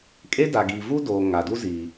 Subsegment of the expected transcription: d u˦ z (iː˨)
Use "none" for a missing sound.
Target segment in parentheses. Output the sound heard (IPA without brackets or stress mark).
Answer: iː˨